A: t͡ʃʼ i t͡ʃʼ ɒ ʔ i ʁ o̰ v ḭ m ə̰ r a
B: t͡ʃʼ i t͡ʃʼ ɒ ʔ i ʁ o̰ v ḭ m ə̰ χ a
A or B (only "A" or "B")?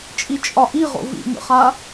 B